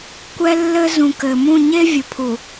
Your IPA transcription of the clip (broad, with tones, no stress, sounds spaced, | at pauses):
kʷ ɛ˦ lː ɘ˦ z ũ˨ k ɘ˨ m ũ˦˨ ɲ e˦ vʲ ʊ˨ pʰ u˨